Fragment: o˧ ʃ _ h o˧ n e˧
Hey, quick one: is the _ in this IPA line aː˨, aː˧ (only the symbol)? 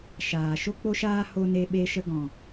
aː˧